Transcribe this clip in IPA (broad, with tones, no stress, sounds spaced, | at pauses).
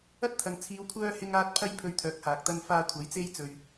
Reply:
ɐ˥ t̚ t̪ʰ ɐ˨˧ ŋ t͡sʰ iː˨˧ w kʷʰ œː˧ h ɪ˧ ŋ aː˧ t̚ pʰ ɐ˥ j pʰ ɵ˧ ɥ t̪ʰ œː˨˥ k̚ h aː˨ k̚ t̪ ɐ˥ n f aː˧ kʷʰ ɐ˨˥ j t͡s e˥ j t͡s ɵ˨ ɥ